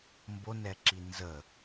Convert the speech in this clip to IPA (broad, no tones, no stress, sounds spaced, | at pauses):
m b o n ɛ ǁ i n z ə